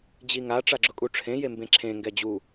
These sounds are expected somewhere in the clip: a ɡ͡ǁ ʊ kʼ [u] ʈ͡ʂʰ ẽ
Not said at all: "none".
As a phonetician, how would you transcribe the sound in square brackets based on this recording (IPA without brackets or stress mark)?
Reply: u